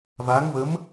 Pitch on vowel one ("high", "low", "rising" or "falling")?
rising